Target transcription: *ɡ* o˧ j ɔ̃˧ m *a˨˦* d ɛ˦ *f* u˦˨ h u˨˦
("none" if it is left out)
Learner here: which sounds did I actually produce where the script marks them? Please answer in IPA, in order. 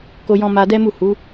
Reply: k, a˧, m

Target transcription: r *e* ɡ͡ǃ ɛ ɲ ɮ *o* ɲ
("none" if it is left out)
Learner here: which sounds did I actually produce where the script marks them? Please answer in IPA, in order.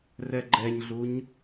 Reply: ɛ, u

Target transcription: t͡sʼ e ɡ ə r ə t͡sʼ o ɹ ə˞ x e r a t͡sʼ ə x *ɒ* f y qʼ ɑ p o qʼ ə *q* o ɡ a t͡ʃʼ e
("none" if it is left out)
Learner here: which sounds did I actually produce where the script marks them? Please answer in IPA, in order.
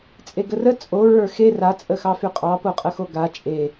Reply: ɑ, x

